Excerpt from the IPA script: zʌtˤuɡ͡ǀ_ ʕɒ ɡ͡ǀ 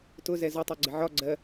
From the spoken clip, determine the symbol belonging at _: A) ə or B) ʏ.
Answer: A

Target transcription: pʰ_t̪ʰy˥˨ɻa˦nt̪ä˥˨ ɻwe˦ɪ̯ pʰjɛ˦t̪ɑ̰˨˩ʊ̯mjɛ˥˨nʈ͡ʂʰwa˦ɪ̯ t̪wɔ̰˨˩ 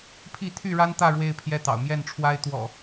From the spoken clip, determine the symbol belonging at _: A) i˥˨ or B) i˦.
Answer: A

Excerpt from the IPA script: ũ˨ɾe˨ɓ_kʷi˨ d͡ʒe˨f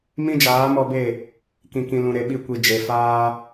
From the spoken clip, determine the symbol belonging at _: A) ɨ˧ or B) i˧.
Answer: B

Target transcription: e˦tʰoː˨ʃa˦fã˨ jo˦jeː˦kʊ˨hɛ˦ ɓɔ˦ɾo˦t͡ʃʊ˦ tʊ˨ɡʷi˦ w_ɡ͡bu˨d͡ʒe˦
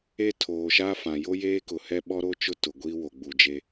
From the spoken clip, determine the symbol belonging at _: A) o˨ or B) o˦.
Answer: A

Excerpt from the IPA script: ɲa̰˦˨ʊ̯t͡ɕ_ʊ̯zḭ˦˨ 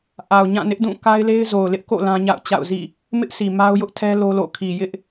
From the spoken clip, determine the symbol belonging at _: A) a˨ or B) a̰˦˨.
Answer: B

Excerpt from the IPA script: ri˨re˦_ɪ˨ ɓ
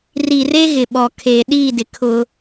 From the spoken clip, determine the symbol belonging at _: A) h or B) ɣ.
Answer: B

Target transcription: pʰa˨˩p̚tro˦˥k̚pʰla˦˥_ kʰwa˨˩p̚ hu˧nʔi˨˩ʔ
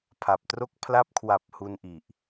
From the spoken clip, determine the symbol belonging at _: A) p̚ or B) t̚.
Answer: A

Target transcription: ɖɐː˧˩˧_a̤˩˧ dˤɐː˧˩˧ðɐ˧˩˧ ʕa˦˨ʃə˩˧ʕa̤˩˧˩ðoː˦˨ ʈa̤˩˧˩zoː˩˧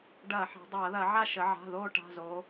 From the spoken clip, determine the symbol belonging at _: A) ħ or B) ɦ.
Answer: A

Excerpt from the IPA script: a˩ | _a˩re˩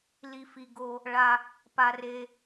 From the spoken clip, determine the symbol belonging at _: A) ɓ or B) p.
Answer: B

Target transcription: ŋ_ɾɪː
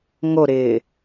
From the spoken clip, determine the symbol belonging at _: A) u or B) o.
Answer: B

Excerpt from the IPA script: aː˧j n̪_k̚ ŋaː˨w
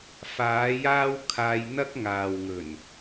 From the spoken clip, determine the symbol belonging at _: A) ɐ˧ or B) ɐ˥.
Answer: B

